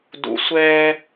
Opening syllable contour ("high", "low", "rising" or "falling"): low